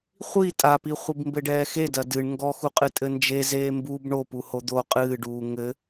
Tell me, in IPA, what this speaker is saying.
χʷ i tʼ a p i χʷ i b m b ɘ ɖ ɛː x e d ɐ d ɨ ɳ ŋ ɡ ɔ x u qʼ ɨ tʼ ɘ n d͡ʒ e z eː m b u b ɳ o p u h o d̪ o qʼ ɨː ɖ uː ŋ ɘ

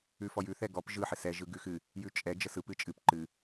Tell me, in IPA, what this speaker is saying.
ʉ f ɔ j ʉ θ ɛ ɡ ɔ p ʒ ɯ ħ ɪ s ɛ ʒ ɯ ɡ ʉ x ɨ | j ʉ t͡ʃʼ ɛ d͡ʒ ə s ɯ p ɨ t͡ʃʼ ɨ p ǃ ɨ

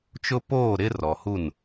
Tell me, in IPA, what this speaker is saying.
t͡ʃ ʊ˦ p oː˦˨ ɾ ɪ˦ r ɔ˨ h u˦˨ n

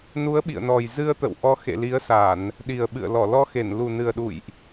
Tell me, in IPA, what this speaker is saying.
n u˨˦ ə̯ ɓ ḭ˧˨ ə̯ n ɔ˨˩ j z ɨ˧ ə̯ t̪ ə̰˧˨ w ʔ ɔ˨˦ x ḛ˧˨ l i˨˦ ə̯ s a˧˩˨ n | ɗ i˨˩ ə̯ ɓ ɨ̰˧˨ ə̯ l ɔ˧˩ l ɔ˧ x e˧˩ n l u˨˩ n ɨ˨˩ ə̯ ɗ ṵ˧˨ j ʔ

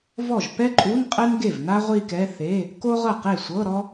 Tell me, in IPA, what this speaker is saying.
v ɔ˥˩ ʒ p ɛ˥ ǃʼ u˧˥˧ n qʼ ɛ˥ n ɡ e˥˩ v n a˥ ʁʷ i˥˧ k ɛ˧˥˧ θ e˧˥˧ | k o˥ ʁ ɤ˥˩ q e˥˩ sʷ ɤ˧˥˧ ɾ ɔ˥

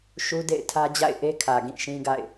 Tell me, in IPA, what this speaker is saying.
ʃ u˦ d ḛ˦˨ ɪ̯ tʰ ä˦ d͡ʑ a̰˦˨ ɪ̯ ʔ e˦ kʰ ä˨ ɡ ĩ˦˨ ʃ ĩ˦ ɡ a̰˦˨ ɪ̯

